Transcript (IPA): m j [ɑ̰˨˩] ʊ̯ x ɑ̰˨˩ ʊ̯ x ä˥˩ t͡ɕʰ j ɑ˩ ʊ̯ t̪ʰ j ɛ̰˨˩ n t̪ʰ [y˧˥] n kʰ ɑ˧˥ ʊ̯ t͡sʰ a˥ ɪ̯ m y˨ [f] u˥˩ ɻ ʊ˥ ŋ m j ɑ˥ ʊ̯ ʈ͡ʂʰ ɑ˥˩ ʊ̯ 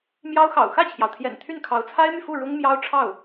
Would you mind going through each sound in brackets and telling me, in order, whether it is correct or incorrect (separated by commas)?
incorrect, incorrect, correct